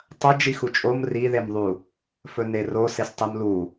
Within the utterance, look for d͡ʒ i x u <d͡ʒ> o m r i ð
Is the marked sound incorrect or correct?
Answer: incorrect